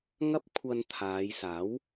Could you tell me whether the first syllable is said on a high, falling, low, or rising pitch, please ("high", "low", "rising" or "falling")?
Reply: high